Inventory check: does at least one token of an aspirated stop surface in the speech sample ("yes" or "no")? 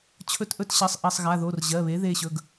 yes